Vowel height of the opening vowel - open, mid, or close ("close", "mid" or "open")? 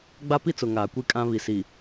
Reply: open